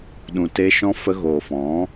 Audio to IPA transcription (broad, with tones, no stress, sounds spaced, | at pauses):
ɗ ũ˨ t e˧ ʃ ɔ̃˧ f ə˧ ɣ oː˨ f ɔ̃˨˦